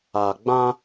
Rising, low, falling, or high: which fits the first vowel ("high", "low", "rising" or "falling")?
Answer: low